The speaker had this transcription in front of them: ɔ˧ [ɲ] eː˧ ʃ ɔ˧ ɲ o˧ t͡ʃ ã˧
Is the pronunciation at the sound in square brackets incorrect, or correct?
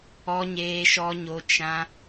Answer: correct